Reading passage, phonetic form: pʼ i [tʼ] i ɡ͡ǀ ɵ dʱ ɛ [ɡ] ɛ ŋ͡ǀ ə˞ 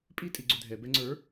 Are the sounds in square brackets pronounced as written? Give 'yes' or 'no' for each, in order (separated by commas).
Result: yes, no